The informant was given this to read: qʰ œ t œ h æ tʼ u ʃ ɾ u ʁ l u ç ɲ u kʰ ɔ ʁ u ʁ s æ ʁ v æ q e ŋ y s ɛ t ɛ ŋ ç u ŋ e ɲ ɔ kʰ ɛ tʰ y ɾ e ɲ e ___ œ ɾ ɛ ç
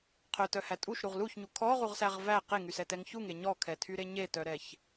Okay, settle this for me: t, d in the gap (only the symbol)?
t